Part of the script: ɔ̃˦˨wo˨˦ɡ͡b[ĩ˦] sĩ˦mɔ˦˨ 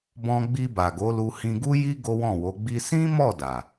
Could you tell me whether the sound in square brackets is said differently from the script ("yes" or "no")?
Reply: yes